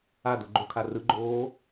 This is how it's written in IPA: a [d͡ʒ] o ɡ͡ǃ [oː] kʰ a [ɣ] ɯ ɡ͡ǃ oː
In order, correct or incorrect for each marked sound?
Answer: incorrect: d, incorrect: o, incorrect: r

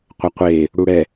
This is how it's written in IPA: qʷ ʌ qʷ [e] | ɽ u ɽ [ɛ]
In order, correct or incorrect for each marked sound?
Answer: correct, correct

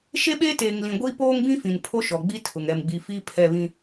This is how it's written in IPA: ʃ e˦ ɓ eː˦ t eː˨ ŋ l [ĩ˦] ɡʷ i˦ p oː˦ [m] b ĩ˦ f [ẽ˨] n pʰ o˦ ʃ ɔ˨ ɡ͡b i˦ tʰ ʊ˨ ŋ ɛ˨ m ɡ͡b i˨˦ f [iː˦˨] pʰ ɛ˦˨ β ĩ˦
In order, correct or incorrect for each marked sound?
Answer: incorrect: ĩ˨, incorrect: ŋ, incorrect: ĩ˨, incorrect: iː˦

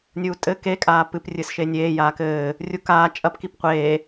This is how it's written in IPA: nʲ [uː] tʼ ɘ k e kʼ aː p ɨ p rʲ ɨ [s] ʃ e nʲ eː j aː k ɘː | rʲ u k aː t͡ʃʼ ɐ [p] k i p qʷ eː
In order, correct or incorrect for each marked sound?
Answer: correct, correct, correct

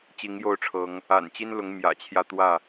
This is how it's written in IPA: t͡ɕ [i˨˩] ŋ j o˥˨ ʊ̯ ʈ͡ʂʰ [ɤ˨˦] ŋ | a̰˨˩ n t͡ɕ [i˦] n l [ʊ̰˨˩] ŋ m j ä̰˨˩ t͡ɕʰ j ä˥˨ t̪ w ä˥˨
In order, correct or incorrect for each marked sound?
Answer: incorrect: i˨˦, correct, correct, incorrect: ʊ˨˦

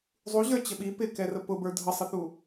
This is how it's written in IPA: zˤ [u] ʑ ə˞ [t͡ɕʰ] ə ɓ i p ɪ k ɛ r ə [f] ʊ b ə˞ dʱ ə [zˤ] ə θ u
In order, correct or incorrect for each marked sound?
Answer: correct, incorrect: t͡ɕ, incorrect: p, incorrect: sˤ

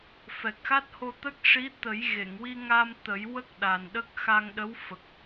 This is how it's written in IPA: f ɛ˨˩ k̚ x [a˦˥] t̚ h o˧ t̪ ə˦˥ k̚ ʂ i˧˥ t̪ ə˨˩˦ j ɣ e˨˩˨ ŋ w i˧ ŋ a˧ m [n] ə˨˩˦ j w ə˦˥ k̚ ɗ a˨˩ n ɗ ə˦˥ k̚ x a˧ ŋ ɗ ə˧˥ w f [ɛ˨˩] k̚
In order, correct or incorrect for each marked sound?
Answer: correct, incorrect: t̪, incorrect: ə˨˩

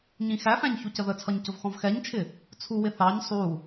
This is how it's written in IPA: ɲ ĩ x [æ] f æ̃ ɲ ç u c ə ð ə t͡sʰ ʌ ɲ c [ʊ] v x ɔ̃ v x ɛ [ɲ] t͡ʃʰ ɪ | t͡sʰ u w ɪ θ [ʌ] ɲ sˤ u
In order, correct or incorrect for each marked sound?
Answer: correct, correct, correct, incorrect: ɑ

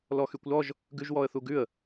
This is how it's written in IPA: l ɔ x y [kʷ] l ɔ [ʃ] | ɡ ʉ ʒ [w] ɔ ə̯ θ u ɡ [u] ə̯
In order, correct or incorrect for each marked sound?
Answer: correct, incorrect: ʒ, correct, incorrect: ʉ

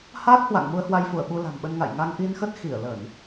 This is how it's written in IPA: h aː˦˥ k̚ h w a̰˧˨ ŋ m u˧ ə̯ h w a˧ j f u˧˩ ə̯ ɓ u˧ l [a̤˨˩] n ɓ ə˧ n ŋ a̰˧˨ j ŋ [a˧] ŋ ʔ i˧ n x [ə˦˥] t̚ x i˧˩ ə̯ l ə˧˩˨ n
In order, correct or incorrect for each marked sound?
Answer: correct, correct, correct

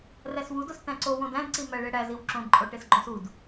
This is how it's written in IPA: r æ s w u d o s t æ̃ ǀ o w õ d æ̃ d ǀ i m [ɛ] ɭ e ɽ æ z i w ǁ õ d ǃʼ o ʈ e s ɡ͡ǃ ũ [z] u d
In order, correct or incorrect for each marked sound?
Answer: incorrect: æ, incorrect: s

